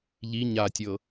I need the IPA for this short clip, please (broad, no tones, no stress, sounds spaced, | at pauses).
ʎ i ɲ a tʲ ɤ